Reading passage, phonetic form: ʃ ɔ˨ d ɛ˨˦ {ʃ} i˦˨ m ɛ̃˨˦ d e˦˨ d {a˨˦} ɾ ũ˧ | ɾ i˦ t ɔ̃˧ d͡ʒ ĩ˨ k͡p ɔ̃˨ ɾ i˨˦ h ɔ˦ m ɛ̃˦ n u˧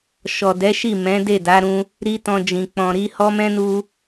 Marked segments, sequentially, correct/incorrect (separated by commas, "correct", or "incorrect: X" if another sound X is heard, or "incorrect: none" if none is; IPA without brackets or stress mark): correct, correct